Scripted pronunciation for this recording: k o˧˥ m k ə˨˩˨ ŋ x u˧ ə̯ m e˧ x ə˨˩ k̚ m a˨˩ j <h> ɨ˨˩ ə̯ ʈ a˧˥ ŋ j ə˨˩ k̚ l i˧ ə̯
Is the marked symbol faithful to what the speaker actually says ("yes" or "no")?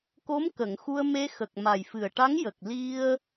no